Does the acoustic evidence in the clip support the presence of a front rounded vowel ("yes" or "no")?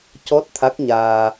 no